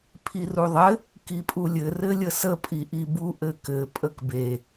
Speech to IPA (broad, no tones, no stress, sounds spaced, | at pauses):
pʰ i r u ðˤ ɘ | k i pʼ u lʲ ɘ r ɘ lʲ ə s ə pʼ i ʔ i b u ʔ ɘ k ɘ pʼ ə k b e